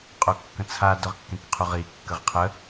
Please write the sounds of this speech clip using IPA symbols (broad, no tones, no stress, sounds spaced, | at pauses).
qʼ o kː ə̃ t͡sʰ a d œ ʁ kː ẽ k qʰ u ʁ i kː ə ʁ qʰ ə